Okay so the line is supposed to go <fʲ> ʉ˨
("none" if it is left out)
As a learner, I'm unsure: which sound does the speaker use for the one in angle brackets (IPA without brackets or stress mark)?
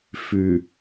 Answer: f